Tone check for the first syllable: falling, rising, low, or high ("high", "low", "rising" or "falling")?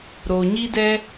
low